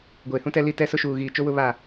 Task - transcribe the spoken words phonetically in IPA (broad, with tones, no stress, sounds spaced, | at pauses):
ɡʷ eː˨ h ũ˦ t ɛ˦ l i˦ t ɛ˦ s ʊ˦ ʃ uː˨ ɣ iː˨ t͡ʃ o˦ w ʊ˦ β a˦˨